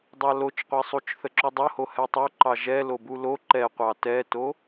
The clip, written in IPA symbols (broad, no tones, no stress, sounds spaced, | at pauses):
dˤ ɑ l o t͡ʃ qʷ ɛ sˤ u t͡ʃ θ ə ǁ o dˤ o h o h ɛ tˤ o ǃ ɑ ʒ ɛ l o b u l o ǃ ɛ qʷ ɑ t ɛ t o